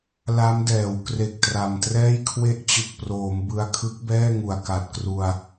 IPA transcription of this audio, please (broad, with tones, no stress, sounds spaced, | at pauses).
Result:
l a˦˥ m d ɛː˩˦ w k r e˨˩ k̚ t r a˨˩ m t r ɛː˥˩ j kʰ w e˦˥ ʔ t͡ɕ ɯ˨˩ k̚ p r oː˩˦ m b ɯ˧ a̯ kʰ ɯ˦˥ k̚ b ɛː˥˩ ŋ u˨˩ a̯ k a˨˩ t̚ k r u˧ a̯